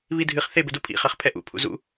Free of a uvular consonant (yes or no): no